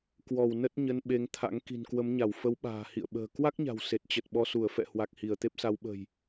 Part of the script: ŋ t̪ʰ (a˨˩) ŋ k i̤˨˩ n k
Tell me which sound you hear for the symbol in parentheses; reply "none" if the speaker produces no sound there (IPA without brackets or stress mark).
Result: a̰˧˥